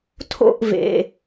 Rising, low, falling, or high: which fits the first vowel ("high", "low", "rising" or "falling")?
falling